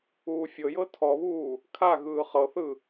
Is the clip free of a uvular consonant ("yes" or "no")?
no